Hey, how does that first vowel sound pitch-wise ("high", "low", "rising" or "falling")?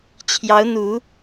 rising